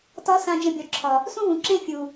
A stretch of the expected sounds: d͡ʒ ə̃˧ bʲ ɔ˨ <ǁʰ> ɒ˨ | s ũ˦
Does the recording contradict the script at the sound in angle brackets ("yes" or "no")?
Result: no